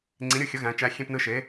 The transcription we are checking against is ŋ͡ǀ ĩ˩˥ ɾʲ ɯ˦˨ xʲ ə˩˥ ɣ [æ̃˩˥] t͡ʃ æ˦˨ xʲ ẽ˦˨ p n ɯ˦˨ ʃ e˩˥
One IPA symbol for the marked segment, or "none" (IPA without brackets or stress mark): æ̃˩˥